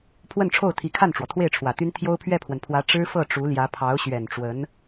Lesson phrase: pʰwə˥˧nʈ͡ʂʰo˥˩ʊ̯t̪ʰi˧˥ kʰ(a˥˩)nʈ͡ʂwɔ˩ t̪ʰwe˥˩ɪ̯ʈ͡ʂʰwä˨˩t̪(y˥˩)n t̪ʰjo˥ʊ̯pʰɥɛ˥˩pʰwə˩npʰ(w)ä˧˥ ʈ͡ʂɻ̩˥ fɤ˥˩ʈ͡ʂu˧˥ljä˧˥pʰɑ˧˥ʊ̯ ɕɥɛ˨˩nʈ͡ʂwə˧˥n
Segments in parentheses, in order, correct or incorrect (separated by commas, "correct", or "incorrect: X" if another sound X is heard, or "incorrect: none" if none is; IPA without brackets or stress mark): correct, incorrect: y˥, correct